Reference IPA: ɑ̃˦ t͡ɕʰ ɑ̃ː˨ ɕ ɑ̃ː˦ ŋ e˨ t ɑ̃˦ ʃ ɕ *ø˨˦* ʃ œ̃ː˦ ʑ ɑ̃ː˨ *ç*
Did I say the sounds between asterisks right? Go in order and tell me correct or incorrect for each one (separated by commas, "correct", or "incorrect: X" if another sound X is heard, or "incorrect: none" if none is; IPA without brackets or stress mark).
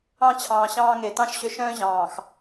incorrect: ø˦˨, incorrect: x